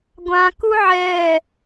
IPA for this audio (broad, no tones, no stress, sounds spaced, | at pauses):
ɡʷ ã k u ʕ ɛː